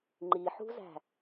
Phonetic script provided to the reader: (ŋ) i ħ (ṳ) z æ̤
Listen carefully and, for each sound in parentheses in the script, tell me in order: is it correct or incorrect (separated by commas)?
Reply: incorrect, correct